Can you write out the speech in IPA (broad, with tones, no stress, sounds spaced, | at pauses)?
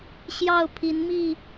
ɕ j ɑ˥˨ ʊ̯ pʰ i˨˦ n m i˥˨